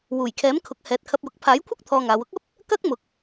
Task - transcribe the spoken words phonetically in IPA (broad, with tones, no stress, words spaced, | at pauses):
wuː˨˩jkʰɛː˨˥mkʰʊ˨˥k̚ hɛː˨˥t̚kʰɐ˧p̚jʊ˨˥k̚ pʰaː˨˥jkʷʰɐ˥k̚ t̪ʰɔː˧ŋaː˨˧w ʊ˥k̚ɐ˥p̚ | kɐ˥k̚mʊ˨k̚